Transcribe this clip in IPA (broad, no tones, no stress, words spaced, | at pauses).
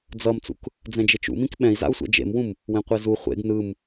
d͡zʌmt͡sṵk | d͡zɛ̃d͡ʒet͡ʃṵmĩk ɓɛ̃i̯za̰u̯sʷɛ̰ d͡ʒḛmwũm | wẽqʷezu χʷḛɡ nɯm